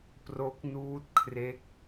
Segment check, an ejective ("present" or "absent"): absent